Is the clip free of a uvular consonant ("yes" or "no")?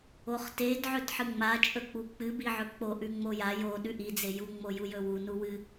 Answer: no